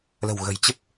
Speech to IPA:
l ə̤˨˩ w ɣ ə̤˨˩ j t͡ɕ ə˦˥ p̚

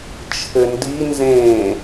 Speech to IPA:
t͡ʃʰ ɘ n d i n z ẽː

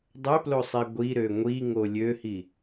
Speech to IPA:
dˤ ø p l o sˤ i ɡʷ i ɾ ø ŋʷ i ŋ o lʲ ø h i

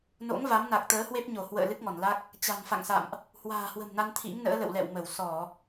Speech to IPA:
n o̰˧˥ ŋ v a˨˦ m n a˨˩ k̚ t̪ əː˨˦ h w e˦˥ p̚ ɲ o˧˩ h w ə̰ː˧˨ l ɨ˦˥ k̚ ŋ ɔ˧˩ n l a˦˥ k̚ | t͡ɕ a̤˨˩ n f a̰˧˨ ŋ s a̰˧˨ m ʔ | h w a̤ː˨˩ h w ə̤˨˩ m n a˧ n t̪ʰ ḭ˧˥ ŋ n ə̰ː˧˥ l ə̰˧˨ w l ɛ̰˧˨ w m ə˧˩ w s ɔ˧˩˨

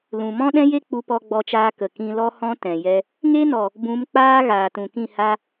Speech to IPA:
l ũ˨ m ɔ̃˦ ɗ ɛ̃˦ j e˦ k͡p u˧ p ɔ˧ ɡ͡b ɔ˧ t͡ʃ aː˧ k ə˨ k ĩ˧ l ɔ˦ h ɔ̃˦ t ɛ̃˨ j ɛ˧ | ŋ e˦ n ɔ˨ | b ũ˨˦ m k͡p aː˦ ɣ aː˨ t ũ˨ k ĩ˦˨ h a˧

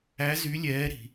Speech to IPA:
æ˦˥ z y˦˥ lʲ ɛː˦˥ ɾ i̤˦˥

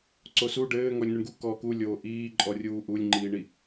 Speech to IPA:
ǀ o s u ɖ ɘː ŋ ɔ lʲ n u ɳ ɡ u k ɔː k u lʲ oː ʔ iː ǃʼ ɔ rʲ uː ʔ u lʲ ŋ͡ǃ iː ɳ i

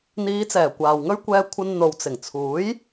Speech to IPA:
n̪ iː˨˧ t͡s ɛː˨˩ kʷ aː˨ w ŋ ɵ˥ ɥ kʷ ɛː˧ kʷʰ ɐ˧ n n̪ o˨ w t͡s ɪ˨˩ ŋ t͡sʰ uː˨˥ j

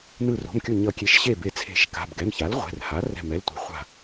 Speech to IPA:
n ɯ˧˩ r o̤˩˧˩ m kʲ o˧˩ ɲ ʌ˨˩˦ kʲ e˩˥ ʃ ɕ e˧˩ b e˨˩˦ t͡sʰ e̤˨˩˦ ʃ k a̤˩˧˩ b ɡ ɛ˩˧˩ m ç a˩˥ l ʁʷ ɛ̤˩˧˩ r h a˩˥ r ɛ̤˧˩ m ɛ˩˧˩ l tʷ ɛ̤˨˩˦ χʷ a̤˧˩

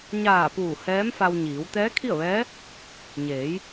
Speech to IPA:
ɲ aː˧˩ p uː˧˩ h ɛː˧˥ m f a˧ w ɲ iː˩˧ w t̪ ɛː˧˥ kʰ i˥˨ ə̯ ʋ ɛː˧˥ | ɲ eː˩˧ j

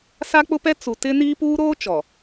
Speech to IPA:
s a˦ k͡p ʊ˦ p ɛ˦ t͡s u˨ t ɪ˦ n iː˦ p uː˦ ɾ oː˦ t͡ʃ ɔ˨

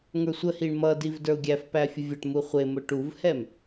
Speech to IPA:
ŋ ə˞ sʷ ə h i ɳ m ʌ d i v d ə˞ ʊ̯ ɡʲ æ f p æ fʲ ʊ vʲ ʌ ʈ m u χʷ ɪ m ʊ ʈ u v h ɛ m

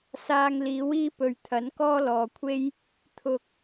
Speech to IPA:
s aː˧ ŋ l iː˨˥ w iː˥ p ɵ˨˧ ɥ t̪ʰ ɐ˨˥ n k ɔː˥ l ɔː˨˧ kʷʰ e˥ j | t̪ʰ ʊ˧ k̚

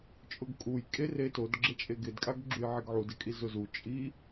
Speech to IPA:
t͡ʃʼ ʊ ɡ kʼ u j kʼ e r e t o d ɡ͡ǁ e t͡ʃʼ e ɡ ɪ d kʼ a ɡ ɡ͡ǁ u j ʕ i ɡ ʕ u d ɪ kʼ i z ʊ z u t͡ʃʼ i

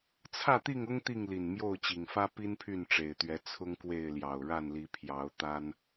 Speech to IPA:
t͡sʰ ä˥˨ t̪ i˥˨ ŋ ʊ˦ ŋ t̪ i˥˨ ŋ l i˨˩ n m j o˥˨ ʊ̯ t͡ɕ i˨˩ ŋ f ä˦ p i˦ n pʰ y˥˨ n ʈ͡ʂ e˨˩ ɪ̯ t̪ ɥ ɛ˨˦ t͡sʰ ʊ˦ ŋ k w e˥˨ ɪ̯ l j ɑ˨˩ ʊ̯ ɻ a˥˨ n l i˨˦ pʰ j ɑ˨˦ ʊ̯ t̪ a˦ n

